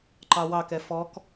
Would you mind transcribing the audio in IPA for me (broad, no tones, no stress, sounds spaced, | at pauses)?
ǃ ɑ w ɑ k ɛ f ɔ k